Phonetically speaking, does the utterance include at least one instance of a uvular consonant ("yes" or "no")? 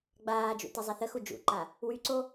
no